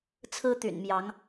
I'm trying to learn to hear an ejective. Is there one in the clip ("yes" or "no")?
no